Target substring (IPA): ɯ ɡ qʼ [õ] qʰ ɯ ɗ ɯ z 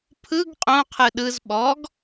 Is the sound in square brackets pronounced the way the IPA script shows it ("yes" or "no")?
yes